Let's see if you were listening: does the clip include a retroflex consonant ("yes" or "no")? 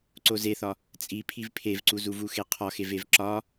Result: no